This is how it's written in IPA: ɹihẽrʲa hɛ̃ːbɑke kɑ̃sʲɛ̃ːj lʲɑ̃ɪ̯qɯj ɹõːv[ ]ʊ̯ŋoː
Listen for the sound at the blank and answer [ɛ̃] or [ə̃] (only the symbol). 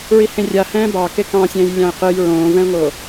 ɛ̃